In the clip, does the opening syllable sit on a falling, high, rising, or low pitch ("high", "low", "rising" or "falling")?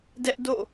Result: high